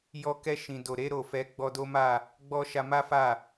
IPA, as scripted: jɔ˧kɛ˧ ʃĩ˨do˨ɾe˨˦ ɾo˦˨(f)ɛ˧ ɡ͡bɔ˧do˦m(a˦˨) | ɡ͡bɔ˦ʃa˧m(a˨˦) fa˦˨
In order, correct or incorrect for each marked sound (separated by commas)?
correct, correct, incorrect